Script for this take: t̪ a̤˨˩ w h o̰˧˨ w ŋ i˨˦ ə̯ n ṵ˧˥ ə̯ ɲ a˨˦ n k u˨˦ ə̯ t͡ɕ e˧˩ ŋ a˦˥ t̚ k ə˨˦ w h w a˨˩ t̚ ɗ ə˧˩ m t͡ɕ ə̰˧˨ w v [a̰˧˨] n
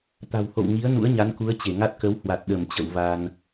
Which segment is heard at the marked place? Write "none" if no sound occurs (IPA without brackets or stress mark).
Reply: a˧